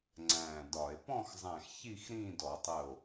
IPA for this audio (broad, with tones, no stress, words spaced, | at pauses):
ŋ͡ǀæ̃ː˧˩dɒ˧˩˧e̯ pɔ̃˥˧xzˤæ̃˧˩x çi˥˧x ɾĩː˥˧dɔ˧˩˧tˤəː˧˩o̯